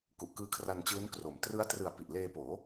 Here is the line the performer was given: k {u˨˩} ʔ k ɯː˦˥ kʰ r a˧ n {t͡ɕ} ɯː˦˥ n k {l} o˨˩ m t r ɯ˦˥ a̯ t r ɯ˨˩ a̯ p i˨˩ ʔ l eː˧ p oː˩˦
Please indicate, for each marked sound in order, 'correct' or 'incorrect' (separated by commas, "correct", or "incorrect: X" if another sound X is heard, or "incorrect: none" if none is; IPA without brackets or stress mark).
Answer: correct, correct, incorrect: r